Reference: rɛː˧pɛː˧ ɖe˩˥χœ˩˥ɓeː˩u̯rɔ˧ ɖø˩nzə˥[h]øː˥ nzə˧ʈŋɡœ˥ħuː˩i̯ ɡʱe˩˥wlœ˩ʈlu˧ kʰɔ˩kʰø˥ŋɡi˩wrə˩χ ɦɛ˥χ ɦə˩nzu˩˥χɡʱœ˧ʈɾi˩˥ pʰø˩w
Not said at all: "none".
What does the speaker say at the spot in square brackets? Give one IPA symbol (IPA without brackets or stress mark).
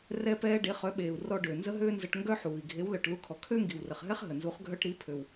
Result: ɦ